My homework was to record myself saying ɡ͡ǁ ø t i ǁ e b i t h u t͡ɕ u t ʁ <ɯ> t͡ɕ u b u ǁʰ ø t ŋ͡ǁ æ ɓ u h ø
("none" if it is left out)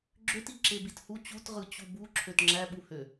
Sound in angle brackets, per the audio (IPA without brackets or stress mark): ɯ